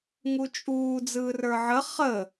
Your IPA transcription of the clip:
ŋ u t͡ʃʼ uː d͡z ɯː r ə˞ ʕ ə χ ə

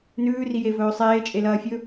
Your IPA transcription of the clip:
n ʉː r i j e v ɵː sˤ eː t͡ʃʼ e l ɐː fʲ ɵ

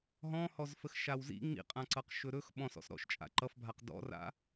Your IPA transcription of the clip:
ɦ ɔ̃ h ɔ z f ə x ʃ a w z ḭ ŋ͡m ḭ qʼ ã ǀ ʌ q ʃ ɵ ɾ ɵ x ɓ ɔ̃ s ɔ̰ s ɾ ɔ̰ ʃ t͡ʃʼ a̰ ǃ ʌ f bʱ a q d ɔ̰ r a̰

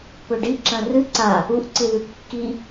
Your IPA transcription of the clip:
p ɵ ɖ i ǁ ɐ̃ r ɨ ǀ a | u ʔ ǀ ɨ ð ʉ kː i

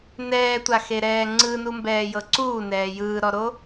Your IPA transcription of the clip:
n ɛː tʷ a x e ɾ ɛː ŋ͡ǀ ɯ n u m b ɛː j ɤ ǀ uː n ɛː j ɯː ɾ ɔ ɾ o

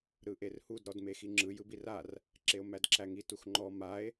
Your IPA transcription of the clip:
ɾ ɯ ʔ e r h u d ɾ ɔ d m e x i ŋ͡ǁ ɯ j ɯ b i r a r | ǁ e o̯ m æ d ǁ æ ŋ i t u x ŋ͡ǃ ɔ m a e̯

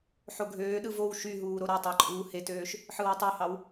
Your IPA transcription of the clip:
ħ o ɡʱ øː ɗ ɯ v o w ʃ y ɦ uː ɾ o ɾ ɑ tˤ ɑ ǃʼ uː h e t øː ʃ | ħ ɯ w ɯ tˤ u h ɑ w

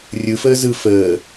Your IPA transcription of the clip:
rʲ ɯ f əː z ɯ f əː

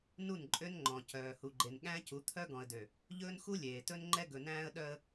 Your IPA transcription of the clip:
n u˦˨ n ǃʼ ø˦ n ŋ͡ǃ ɔ̃˨ c œː˨ h u˨ ɡ͡ǃ e˨ n ɠ æ̃˦ c u˨˦ t̪ʰ œ˦ ɡ ɔ̃˨ ə̯ d ø˨ | ʎ ɵː˦ n x u˦ lʲ eː˨ t ɵ˦ n ŋ͡ǃ ɛ˦ ɡ ɵ˨ n æ̃ː˦ ə̯ ɗ œ˦ ə̯

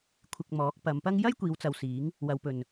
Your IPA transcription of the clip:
kʷʰ ɪ˧ k̚ m ɔː˨˥ k̚ p ɐ˨˧ m p ɐ˥ ŋ j ɐ˥ j kʷ iː˨˧ w t͡s ɐ˨ w s iː˨˥ ŋ | w ɐ˨˧ w p ɵ˨ n

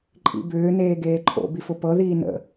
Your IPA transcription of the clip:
ǃʼ ḭ b ʏː n eː ɡ eː ǃʰ o̰ b i f ʊ p ɤ ð iː n ə̰

